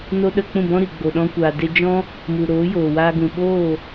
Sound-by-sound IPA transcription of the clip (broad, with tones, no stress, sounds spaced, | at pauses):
n o˦ ɗ ə˧ k͡p ũ˦˨ b ɔ̃˦ ɾ i˨ ɡ͡b o˨ ɗ ɔ̃˧ kʷ aː˨ d e˧ d͡ʒ ɔ̃˦ | m u˨ ɾ oː˨˦ j oː˨ w aː˧ ɡ ũ˨ ɓ oː˦˨